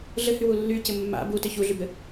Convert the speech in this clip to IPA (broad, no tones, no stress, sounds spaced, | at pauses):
ɮ ɘ h y w u lː y c ɪ mː a̰ b u t ɪ ç u ɮ y b ɘ